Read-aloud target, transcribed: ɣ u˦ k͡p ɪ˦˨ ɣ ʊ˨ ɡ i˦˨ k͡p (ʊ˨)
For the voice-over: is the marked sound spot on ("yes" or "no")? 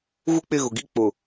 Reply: yes